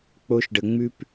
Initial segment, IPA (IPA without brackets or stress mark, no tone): k͡p